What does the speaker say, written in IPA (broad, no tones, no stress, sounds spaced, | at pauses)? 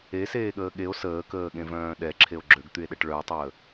e s eː ɠ əː ɠ e o̯ s əː k əː ɠ ẽ v œ̃ː ɗ ɛ ǁʰ e o̯ ɡ͡ǁ ø ɡ t̪ y e̯ ɗ ɛ ʈ ɭ œ o̯ tˤ əː